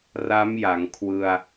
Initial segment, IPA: r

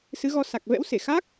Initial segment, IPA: s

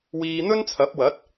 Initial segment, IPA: w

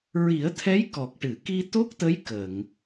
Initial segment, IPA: ɹ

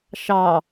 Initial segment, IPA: ʃ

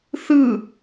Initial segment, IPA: θ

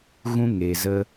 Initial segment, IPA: ɣ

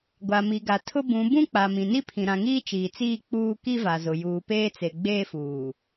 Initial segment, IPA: ɡʷ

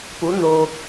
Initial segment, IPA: p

